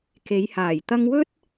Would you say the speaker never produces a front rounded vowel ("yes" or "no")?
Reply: yes